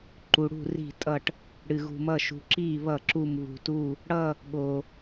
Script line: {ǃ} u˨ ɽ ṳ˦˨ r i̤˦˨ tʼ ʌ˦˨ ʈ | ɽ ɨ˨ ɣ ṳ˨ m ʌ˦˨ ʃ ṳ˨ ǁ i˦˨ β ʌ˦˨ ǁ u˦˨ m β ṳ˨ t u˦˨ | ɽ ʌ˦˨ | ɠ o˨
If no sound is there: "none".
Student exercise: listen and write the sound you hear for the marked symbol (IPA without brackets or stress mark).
ǃ